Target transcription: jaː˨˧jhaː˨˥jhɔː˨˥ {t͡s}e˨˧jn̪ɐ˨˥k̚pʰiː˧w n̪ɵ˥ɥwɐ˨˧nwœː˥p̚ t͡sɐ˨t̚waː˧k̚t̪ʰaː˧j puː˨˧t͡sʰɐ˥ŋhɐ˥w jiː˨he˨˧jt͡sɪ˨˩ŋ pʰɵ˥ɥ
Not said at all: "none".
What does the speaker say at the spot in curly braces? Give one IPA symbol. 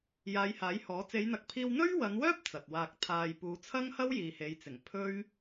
t͡s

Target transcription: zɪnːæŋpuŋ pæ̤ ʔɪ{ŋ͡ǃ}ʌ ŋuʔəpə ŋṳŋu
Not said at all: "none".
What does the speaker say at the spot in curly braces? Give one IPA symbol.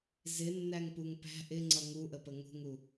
ŋ͡ǀ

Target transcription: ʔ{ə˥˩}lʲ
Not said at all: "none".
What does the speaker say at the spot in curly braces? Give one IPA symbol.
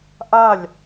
a˥˩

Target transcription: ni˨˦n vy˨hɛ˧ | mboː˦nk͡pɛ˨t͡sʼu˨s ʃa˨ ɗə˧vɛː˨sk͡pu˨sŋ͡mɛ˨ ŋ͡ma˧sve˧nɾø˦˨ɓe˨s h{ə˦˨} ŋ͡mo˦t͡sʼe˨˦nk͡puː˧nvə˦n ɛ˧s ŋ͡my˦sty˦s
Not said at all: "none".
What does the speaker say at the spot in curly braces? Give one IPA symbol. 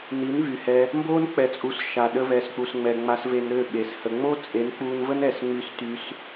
ə˧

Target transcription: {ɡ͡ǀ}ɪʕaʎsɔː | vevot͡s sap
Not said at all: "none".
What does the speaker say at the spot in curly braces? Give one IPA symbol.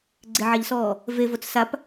ɡ͡ǀ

